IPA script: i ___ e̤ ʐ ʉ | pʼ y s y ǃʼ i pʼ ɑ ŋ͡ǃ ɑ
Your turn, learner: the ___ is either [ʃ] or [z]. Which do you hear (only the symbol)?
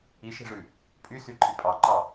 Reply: ʃ